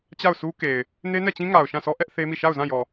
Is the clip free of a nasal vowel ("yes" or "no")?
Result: no